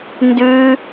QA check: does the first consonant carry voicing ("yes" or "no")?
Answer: yes